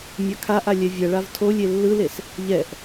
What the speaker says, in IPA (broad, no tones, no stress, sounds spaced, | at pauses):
mʲ a kʰ a ʔ a lʲ ɛ vʲ ʌ ɭ a v tʰ o lʲ e lː ɯ l e s | ʎ ɛ ʔ